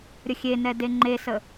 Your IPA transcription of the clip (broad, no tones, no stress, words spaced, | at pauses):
ɾʲəxʲenɛ deŋ͡ǃesə